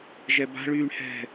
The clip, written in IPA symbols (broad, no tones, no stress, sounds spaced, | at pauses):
ʒ ɛ b a̤ ɭ yː ɳ h ɛ̤